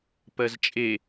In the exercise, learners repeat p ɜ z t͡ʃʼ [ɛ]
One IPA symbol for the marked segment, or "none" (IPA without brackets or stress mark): e